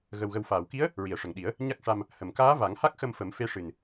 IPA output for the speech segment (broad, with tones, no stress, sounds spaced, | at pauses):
ɣ ə˨˩ w ɣ ə˨˩ w f aː˨˩˨ w k i˧˥ ə̯ | ɹ i˨˩˨ ə̯ ʂ ə˨˩ ŋ ɗ i˨˩˦ ə̯ | ɲ a˦˥ k̚ ʂ a˧ m | h ə˨˩ m k aː˧˥ v a˨˩˦ ŋ h a˦˥ k̚ x ə˧ m f ə˨˩˦ m f e˧˥ ʂ ɨ˨˩ n